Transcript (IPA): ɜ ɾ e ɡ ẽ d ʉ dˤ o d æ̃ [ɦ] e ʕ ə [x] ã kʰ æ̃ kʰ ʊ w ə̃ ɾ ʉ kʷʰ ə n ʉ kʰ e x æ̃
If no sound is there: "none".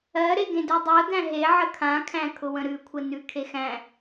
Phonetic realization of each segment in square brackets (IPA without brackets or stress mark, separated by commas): ɦ, kʰ